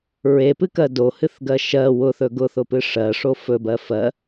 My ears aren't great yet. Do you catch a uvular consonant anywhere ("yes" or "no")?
no